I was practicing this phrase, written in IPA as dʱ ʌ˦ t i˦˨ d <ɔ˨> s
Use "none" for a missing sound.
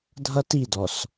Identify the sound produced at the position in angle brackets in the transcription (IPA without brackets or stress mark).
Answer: ɔ˨